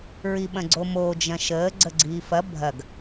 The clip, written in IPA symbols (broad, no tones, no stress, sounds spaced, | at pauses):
ɹ i ɓ ɐ̃ ɡ͡ǀ o m oː d͡ʒ ɐ̃ ʃ əː ɡ͡ǀ ə ɡ͡ǀ iː f ɐ bʱ ɐ ɡ